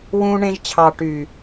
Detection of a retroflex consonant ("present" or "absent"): present